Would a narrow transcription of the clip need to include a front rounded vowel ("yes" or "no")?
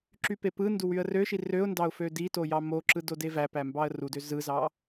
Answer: yes